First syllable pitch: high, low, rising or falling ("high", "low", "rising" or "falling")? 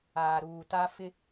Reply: low